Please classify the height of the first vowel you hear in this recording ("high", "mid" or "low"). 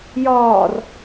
low